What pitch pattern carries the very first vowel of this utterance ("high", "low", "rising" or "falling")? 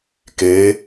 rising